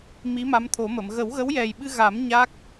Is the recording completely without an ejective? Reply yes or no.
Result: yes